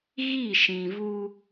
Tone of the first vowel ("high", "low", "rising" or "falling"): falling